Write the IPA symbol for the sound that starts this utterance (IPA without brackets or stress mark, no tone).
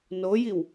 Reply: n